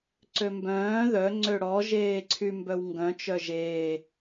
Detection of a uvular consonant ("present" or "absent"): absent